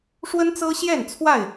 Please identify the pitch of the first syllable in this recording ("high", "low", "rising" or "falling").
high